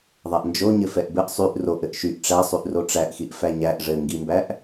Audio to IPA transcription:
ðˤ æ ʔ n d͡ʒ o ɲ ɘ f ɛ ʔ b ɘ ʔ sˤ y ʔ r o ʔ ɘ ʔ ʃ y ʔ ʈ͡ʂ æ sˤ y ʔ r o ʈ͡ʂ æ ʔ x i ʔ f æ ɲ æ ʔ ʐ ɘ ŋ ɡ i m b æ ʔ

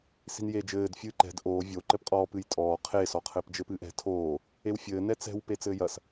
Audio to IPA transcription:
s i̤ n j e d͡ʒ ɘː d fʲ ɨː ǃ ɛ̤ d ʔ oː vʲ o ǃ ɘ p qʼ ɔː p ɨ j tʼ ɔː qʰ e s ɔ qʰ ɘː p d͡ʒ ɘ p ɨː ʔ ɛ̤ tʰ oː | e w fʲ ɘː n ɛ t͡s ɛ̤ w p e t͡s ɘː j ɐ s

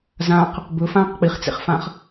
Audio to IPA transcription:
z ã q | b ɵ f ãː q k͡p i χ t͡s ḛ χ f ã χ

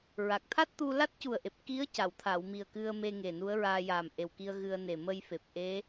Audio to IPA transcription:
ɹ a˨˩ k̚ t̪ʰ a˦˥ t̚ t̪ u˧ l a˦˥ t̚ c u˨˩ ə̯ ʔ e˨˩ p̚ k i˧˥ ə̯ c a˨˩˨ w t̪ʰ a˨˩˨ w m i˨˩ ə̯ k ɨ˧ ə̯ m e˧ ŋ e˨˩ n u˧˥ ə̯ ɹ aː˧ j aː˨˩ m ʔ e˨˩ w k i˧ ə̯ ɣ ɨ˧ ə̯ n e˨˩ m ə˧ j f e˨˩ p̚ ʔ e˧˥

